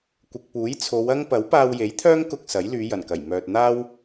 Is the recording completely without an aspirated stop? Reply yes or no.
no